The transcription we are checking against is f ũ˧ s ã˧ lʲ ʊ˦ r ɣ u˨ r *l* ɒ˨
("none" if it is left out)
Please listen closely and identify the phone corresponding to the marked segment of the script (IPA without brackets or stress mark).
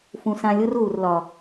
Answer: l